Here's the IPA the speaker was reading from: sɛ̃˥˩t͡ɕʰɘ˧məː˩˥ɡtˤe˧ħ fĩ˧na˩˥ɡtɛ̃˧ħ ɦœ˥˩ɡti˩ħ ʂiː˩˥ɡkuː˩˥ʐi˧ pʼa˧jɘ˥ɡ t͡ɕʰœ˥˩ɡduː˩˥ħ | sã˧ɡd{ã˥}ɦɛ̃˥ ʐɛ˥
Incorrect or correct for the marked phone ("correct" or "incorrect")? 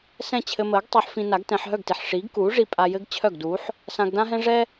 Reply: correct